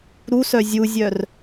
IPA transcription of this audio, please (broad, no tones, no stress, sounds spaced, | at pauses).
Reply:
ɾ u s œ zʲ u zʲ œ r